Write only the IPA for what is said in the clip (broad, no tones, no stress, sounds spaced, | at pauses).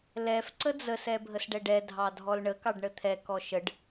l ɛ f ǀ ə d͡z ə s ɛ bʱ ə s ɖ ɛ ɖ ɛ dʱ ɑ dʱ ɔ l ɳ ə k ɑ ɖ ɳ ə t̪ʰ ɛ k ɔ ʃ ə ɖ